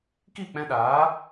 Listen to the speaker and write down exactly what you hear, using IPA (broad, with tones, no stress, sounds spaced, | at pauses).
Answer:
k i˦˨ k͡p ɛ̃˧ ɗ aː˨˦